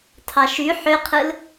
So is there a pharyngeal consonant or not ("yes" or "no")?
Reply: yes